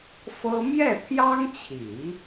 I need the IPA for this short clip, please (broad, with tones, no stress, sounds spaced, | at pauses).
f ɤ˥ m j ɛ˥˩ t̪ʰ j ɑ˥ ŋ t͡ɕʰ i˨˩˦